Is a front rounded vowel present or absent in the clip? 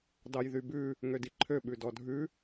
present